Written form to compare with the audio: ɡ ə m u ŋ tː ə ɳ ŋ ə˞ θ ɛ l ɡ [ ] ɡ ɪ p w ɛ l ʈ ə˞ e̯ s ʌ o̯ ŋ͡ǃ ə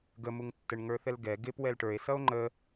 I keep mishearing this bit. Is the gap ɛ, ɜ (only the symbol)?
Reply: ɛ